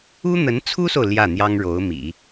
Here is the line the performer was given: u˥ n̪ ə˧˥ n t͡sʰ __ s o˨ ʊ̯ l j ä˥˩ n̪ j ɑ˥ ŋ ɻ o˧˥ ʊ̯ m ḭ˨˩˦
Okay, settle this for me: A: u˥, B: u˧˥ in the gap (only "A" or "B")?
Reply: A